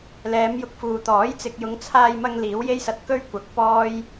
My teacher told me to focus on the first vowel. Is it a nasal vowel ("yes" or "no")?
no